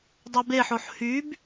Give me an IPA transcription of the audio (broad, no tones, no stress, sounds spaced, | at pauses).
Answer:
dˤ ɛ b e ħ o ħ h y b